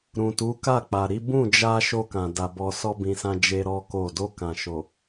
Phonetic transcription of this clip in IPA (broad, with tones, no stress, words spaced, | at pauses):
ɾũ˨tu˨˦ka˦˨k͡pa˨ ɾi˨˦ bũ˦˨d͡ʒa˧ ʃo˧kã˨da˨ bɔ˨sɔ˧bĩ˨sã˧ d͡ʒe˦ɾɔ˦ko˦˨ do˧kã˨ ʃo˨